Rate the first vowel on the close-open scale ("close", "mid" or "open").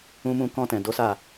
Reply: close